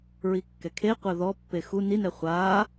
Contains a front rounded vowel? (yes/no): no